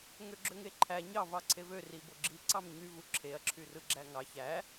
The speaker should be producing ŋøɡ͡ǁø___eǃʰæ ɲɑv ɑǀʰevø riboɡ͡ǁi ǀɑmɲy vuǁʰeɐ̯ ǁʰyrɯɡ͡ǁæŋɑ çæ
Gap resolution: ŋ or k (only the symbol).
ŋ